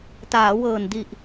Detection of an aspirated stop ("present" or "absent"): absent